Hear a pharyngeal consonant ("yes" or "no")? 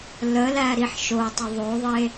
yes